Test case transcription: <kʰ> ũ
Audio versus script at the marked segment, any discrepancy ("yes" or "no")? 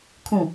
no